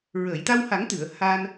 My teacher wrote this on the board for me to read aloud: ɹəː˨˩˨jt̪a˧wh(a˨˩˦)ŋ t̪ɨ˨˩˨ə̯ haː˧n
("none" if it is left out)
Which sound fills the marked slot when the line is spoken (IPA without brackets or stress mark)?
a˨˩˦